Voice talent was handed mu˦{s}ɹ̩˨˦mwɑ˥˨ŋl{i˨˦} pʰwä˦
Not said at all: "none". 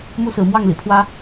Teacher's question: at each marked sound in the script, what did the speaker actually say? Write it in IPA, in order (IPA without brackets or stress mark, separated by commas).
s, ḭ˨˩